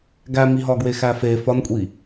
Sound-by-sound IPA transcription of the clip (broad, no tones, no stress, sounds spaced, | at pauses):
ɡ æ m i ɦ ɒ ɡ w e x æ f e f ɒ n kʷʼ i